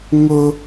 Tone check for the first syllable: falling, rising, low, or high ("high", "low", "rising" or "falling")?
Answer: high